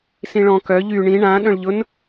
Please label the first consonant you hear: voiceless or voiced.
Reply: voiceless